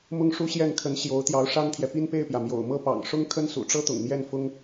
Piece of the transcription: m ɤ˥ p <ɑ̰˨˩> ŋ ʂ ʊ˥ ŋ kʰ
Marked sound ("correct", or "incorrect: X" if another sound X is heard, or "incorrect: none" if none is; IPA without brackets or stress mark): correct